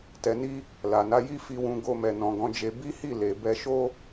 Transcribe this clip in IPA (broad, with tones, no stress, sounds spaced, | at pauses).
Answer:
t ɛ˧ n i˦ | l a˨ n a˨˦ j i˦ f i˧ w ũ˧ ɡ o˧ m ɛ˨ n ɔ̃˨ ɡ ɔ̃˨˦ d͡ʒ e˧ b i˦ h i˦˨ l e˨ b ɛ˧ ʃ o˦